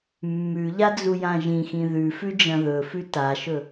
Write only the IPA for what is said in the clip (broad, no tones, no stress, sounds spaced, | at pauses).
mː ʉ ʎ a d͡z u j ã ʒ ĩ x ĩ ð ʉ f ʉ d͡ʒ ɐ̃ ð ɵ f ʉ t a ʃ ɵ